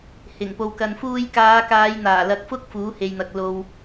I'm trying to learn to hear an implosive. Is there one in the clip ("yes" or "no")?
no